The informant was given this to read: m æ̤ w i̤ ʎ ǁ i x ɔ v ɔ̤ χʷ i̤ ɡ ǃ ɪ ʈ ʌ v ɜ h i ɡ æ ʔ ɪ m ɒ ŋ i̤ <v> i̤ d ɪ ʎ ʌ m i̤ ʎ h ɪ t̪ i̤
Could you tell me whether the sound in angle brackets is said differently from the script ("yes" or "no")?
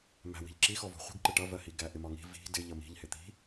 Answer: no